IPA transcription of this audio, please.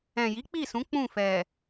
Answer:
ɛ̃˨ j i˨˦ k͡p i˦˨ s ũ˨˦ k͡p ũ˦˨ f ɛ˨

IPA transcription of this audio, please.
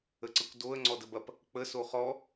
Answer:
ə ǀ ə kʷ d o ə̯ ŋ͡ǀ ɔ d ə b ɐ p | k͡p ə s o χ ɔ

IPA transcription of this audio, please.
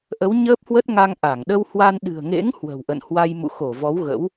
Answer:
ʔ ə˨˦ w ɲ əː˦˥ p̚ h w ə˦˥ t̚ ŋ a˧ ŋ ʔ a˧˩ ŋ ɗ ə˧ w h w a˧ n ɗ ɨ̤˨˩ ə̯ ŋ ḛ˧˥ ŋ h w ə̤˨˩ w ʔ ə̰˧˨ n h w a˧ j m ṵ˧˨ x o˧˩ v ɔ˨˦ w ɣ ə̰˧˥ w

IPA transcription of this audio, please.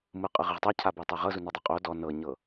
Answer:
m ɯ qʼ ɯ ʁ i ʁ tˤ ɤ cʰ a b e tˤ e ʁ ɤ z u n ɔ dˤ ɤ qʼ o d ɔ n ɤ ɲ ɤ

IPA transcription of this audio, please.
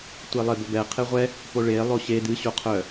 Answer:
tʷ e lˠ e b o b ɛ qʰ e ʁʷ ɛ | p o ɭ e lˠ o ɕ e d ɨ ɕ o qʰ œ

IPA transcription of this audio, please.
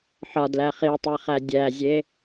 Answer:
ħ ɒ d l æ χ i tˤ æ χ æ dʲ æ zʲ e

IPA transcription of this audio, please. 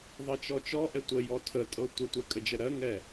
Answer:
ðˤ ɤ t͡ʃ ɔ t͡ʃ ɔ ʔ ɛ tʷ ə j ɔ tʰ ə tʼ ɤ tʷ ə tʷ ɛ kʼ ə d͡ʒ ə ɾ ɜ ŋ ɛ

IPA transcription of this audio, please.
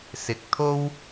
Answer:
s ɪ˨ k̚ t̪ʰ o˥ w

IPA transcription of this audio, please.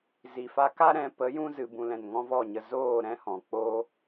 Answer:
z i˨ f a˧ k a˦ ɾ ɛ̃˧ p ə˨˦ j ũ˧ z ɨ˨ b ũ˨ l ɛ̃˨ n ŋ ɔ̃˦ v ɔ˦˨ ɲ ə˧ z oː˦˨ ɾ ɛ̃˦ h ɔ̃˨ k͡p oː˦

